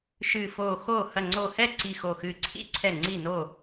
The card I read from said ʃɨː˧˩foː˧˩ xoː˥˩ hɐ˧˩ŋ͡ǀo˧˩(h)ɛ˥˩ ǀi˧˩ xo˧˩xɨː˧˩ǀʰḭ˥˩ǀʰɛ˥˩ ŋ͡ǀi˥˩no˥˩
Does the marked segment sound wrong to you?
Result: no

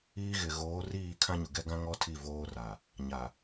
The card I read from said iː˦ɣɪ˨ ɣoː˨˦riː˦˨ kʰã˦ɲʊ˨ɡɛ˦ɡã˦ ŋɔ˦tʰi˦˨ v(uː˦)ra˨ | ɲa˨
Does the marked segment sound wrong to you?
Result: yes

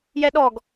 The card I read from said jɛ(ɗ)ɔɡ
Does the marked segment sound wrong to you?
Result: no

